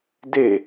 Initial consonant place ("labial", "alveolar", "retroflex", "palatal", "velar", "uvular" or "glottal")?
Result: alveolar